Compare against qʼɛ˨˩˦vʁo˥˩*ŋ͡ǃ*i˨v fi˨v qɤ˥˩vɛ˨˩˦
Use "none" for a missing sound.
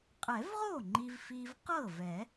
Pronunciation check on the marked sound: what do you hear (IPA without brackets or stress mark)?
ŋ͡ǃ